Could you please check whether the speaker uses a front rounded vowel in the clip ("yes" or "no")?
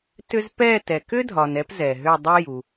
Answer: yes